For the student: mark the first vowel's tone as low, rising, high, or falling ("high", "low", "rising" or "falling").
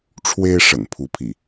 high